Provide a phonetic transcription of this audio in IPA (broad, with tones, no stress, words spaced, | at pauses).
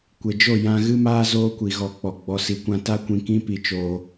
kʷe˨d͡ʒo˦˨ jã˧ɣɨ˦maː˦ zoː˦kʷi˨ɣɔ˧k͡pɔ˨ ɡ͡bɔ˧si˧kʷã˦ ta˦kʷĩ˧kĩ˦ pi˧t͡ʃoː˧